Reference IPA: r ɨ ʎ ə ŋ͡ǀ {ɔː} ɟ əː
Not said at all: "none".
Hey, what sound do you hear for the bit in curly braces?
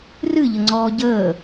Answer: ɔː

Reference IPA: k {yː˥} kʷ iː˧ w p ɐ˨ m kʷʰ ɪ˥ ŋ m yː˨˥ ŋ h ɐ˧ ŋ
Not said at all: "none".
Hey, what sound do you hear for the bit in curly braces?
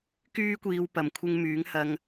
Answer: yː˥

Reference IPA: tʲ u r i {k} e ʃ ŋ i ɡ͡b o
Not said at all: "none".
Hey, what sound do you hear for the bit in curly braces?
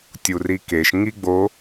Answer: k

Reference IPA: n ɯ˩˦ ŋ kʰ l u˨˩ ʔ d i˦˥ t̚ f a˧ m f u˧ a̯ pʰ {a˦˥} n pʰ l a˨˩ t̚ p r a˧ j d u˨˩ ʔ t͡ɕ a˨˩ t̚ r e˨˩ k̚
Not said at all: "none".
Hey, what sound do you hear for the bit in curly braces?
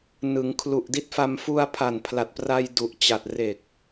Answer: a˨˩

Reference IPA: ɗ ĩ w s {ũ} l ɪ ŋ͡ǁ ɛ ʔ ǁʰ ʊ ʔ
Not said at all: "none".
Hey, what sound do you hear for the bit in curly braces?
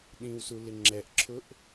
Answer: u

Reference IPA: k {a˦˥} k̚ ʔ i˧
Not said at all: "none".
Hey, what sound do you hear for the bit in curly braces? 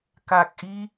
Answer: a˨˩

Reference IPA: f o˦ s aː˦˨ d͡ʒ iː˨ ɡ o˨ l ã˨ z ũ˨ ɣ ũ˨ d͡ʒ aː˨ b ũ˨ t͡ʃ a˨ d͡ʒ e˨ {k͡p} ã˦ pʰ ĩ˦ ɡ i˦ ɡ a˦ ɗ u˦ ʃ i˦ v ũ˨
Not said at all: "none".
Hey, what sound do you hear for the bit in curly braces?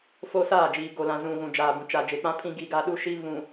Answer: k͡p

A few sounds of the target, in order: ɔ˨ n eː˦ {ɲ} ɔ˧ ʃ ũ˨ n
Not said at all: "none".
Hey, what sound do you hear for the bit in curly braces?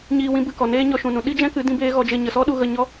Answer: ɲ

